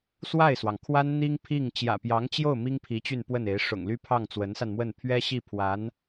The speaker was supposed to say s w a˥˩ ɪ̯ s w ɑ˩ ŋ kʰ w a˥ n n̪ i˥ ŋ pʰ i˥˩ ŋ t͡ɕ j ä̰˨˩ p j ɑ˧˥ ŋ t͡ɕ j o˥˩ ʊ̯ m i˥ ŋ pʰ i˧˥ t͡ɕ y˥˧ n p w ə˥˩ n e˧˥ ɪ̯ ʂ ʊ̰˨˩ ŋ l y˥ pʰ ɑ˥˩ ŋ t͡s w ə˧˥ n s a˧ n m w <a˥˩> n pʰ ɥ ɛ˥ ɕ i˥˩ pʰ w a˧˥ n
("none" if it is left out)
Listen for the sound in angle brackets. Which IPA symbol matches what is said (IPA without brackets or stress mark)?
ə˥˩